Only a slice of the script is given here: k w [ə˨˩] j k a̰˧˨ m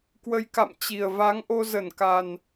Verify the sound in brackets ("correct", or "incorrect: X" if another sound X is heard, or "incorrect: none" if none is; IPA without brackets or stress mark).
incorrect: ə˧